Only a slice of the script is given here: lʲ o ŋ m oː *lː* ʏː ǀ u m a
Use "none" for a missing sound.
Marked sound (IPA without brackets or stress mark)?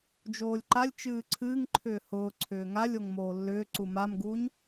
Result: lː